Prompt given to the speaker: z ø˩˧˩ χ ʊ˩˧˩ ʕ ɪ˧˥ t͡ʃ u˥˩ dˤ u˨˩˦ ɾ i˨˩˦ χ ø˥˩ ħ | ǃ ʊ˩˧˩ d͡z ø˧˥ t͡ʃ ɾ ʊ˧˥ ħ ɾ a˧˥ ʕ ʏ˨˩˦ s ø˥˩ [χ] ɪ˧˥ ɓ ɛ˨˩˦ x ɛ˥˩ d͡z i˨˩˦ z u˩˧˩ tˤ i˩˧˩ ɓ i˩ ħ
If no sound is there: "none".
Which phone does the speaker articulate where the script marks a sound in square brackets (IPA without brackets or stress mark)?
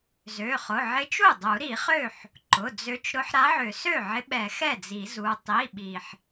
ʕ